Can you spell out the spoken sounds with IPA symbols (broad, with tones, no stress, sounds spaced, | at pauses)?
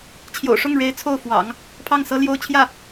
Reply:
t͡ɕʰ j o̰˨˩ ʊ̯ ʂ ʊ˥˩ ŋ ɻ e˧˥ ɪ̯ t͡sʰ o˥˩ ʊ̯ f w ɑ̰˨˩˦ ŋ | pʰ ɑ˥˩ ŋ s ɤ˥ l j o˥ ʊ̯ t͡ɕʰ j ä˥˩